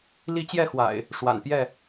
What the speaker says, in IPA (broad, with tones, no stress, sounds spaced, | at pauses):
l i˦ t͡ɕ j ɛ˥˨ x w a̰˨˩ ɪ̯ | ʂ w a̰˨˩ n p j ɛ˥˨